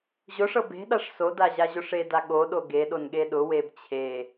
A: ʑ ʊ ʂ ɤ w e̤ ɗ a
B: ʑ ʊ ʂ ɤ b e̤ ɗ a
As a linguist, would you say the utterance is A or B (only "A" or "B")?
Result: B